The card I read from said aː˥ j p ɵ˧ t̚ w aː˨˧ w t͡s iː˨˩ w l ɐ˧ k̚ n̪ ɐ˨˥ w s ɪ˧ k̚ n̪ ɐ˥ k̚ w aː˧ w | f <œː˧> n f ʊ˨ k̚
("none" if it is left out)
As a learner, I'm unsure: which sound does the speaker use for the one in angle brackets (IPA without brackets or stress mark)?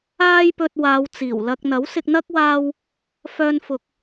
œː˧